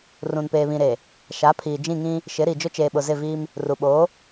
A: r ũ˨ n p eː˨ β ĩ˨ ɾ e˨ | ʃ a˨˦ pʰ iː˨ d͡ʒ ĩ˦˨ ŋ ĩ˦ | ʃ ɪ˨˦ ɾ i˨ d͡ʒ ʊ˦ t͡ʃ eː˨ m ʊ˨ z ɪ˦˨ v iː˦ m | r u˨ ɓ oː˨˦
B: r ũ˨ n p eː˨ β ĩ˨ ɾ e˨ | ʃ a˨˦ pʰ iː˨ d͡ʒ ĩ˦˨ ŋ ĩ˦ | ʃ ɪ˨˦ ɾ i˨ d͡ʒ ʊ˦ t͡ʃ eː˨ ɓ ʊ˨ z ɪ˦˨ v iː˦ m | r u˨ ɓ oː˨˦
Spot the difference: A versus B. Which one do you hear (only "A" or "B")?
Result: B